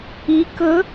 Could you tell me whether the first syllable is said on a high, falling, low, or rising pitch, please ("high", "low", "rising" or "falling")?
rising